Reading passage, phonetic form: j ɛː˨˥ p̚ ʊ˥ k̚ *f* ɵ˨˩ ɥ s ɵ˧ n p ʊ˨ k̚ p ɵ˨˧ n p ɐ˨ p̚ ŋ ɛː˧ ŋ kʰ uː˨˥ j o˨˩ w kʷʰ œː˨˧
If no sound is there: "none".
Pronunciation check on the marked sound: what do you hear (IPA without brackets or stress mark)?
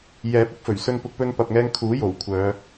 f